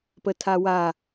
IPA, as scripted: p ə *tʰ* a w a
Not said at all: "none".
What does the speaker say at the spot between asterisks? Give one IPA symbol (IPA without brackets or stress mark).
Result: tʰ